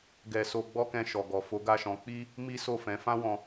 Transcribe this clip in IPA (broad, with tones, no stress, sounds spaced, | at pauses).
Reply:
ɡ ɛ˧ s o˧ ɡ͡b ɔ˦ k ɛ̃˧ ʃ ɔ˨ ɡ ɔ˨ f o˨˦ ɡ a˦˨ ʃ ɔ̃˧ k͡p i˦ | m i˦ s o˦˨ f ɛ̃˨˦ f ã˦ w ɔ̃˧